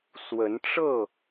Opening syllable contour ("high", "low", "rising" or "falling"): rising